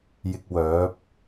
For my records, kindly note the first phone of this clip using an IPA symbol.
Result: j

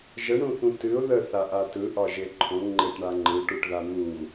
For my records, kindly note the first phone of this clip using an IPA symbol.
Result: ʒ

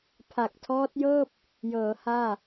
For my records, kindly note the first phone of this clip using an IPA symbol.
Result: pʰ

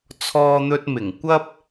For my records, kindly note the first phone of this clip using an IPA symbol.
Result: t͡sʰ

